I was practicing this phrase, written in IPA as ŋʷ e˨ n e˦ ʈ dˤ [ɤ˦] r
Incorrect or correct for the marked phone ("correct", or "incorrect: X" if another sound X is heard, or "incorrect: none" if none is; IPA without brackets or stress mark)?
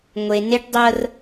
correct